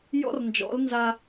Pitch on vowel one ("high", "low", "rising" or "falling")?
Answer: high